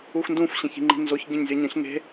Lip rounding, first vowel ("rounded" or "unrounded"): rounded